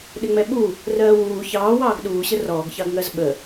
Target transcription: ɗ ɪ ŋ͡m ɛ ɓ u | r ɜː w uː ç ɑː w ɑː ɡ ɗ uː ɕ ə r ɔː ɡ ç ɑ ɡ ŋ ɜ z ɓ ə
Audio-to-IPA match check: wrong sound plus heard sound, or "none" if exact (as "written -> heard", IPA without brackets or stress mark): none